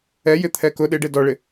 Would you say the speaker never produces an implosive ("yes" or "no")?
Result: no